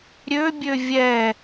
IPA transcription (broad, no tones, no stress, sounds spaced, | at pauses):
ɾʲ ø bʲ ø vʲ ɛ